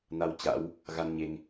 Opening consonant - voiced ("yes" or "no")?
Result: yes